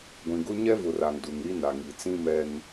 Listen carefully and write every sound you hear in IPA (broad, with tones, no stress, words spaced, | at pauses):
ɡʷĩ˨ɡʊ˦ ɲɛ˦vʊ˨ra˨ŋ du˨ŋɾi˦ na˨ŋi˨t͡sĩ˦ mɛ˦n